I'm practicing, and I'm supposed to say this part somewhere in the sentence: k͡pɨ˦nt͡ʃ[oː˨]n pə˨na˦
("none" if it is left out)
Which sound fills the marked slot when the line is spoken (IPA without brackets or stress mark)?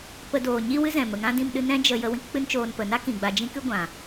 oː˧